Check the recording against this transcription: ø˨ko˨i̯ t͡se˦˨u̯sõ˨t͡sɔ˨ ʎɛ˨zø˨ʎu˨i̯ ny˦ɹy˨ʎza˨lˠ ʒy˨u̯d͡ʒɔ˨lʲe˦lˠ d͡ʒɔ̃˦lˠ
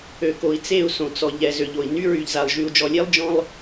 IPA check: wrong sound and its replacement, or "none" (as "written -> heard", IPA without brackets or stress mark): u˨ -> o˨